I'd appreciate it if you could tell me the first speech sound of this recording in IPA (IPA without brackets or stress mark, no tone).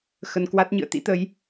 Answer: x